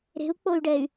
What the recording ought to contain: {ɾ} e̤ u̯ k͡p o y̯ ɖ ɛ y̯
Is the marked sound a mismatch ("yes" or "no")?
no